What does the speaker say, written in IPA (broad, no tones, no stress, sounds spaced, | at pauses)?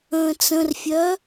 ə̃ː t͡s ə̃ r fʲ œ